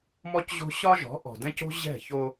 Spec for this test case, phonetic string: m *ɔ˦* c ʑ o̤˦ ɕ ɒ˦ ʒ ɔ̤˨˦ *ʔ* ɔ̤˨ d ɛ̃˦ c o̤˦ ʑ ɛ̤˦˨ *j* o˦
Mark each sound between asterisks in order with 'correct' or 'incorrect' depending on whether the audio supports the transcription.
correct, correct, incorrect: ç

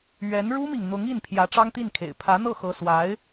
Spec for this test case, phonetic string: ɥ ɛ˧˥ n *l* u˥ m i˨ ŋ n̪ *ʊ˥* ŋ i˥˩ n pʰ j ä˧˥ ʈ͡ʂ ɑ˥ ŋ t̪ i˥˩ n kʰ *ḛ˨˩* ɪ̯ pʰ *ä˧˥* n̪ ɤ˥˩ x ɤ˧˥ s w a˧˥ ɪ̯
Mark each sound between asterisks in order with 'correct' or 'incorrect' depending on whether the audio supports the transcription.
incorrect: ɻ, incorrect: ʊ˧˥, correct, correct

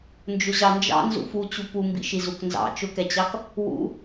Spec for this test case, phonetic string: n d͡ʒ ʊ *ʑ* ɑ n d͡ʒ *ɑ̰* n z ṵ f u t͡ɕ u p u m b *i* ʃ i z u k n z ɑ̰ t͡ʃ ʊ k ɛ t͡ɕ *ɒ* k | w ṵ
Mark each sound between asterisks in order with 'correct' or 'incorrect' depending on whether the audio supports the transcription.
correct, correct, incorrect: ḭ, incorrect: ɑ

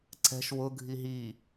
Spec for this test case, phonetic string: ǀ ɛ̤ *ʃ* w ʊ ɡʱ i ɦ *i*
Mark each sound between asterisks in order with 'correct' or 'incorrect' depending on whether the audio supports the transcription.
correct, correct

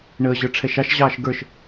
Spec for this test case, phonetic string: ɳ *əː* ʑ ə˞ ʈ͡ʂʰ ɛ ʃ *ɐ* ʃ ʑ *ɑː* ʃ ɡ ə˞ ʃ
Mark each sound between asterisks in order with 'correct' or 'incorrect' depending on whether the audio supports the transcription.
correct, incorrect: ɑ, correct

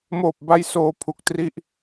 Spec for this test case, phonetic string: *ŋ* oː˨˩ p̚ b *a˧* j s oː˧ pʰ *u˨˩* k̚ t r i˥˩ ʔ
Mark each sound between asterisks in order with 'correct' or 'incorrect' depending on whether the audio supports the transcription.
incorrect: m, correct, correct

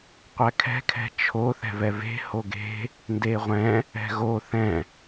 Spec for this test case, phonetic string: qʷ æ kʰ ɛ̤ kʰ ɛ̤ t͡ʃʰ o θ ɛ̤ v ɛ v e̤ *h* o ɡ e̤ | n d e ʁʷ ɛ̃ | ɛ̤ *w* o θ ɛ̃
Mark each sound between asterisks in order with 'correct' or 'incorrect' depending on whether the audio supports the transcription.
correct, incorrect: ɣ

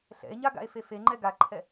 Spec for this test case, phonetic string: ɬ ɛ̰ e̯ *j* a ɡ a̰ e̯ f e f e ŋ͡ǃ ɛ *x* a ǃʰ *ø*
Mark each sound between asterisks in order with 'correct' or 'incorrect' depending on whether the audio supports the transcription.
incorrect: ɲ, incorrect: ɡ, incorrect: ɛ

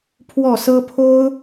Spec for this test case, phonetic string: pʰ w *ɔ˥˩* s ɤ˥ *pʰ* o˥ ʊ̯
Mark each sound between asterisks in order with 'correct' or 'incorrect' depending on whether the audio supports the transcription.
correct, correct

